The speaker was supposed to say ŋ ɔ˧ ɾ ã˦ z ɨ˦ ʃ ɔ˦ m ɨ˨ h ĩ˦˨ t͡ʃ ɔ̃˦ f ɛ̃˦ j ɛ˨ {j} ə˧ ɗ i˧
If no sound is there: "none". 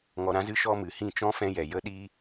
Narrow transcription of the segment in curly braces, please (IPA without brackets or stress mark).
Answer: j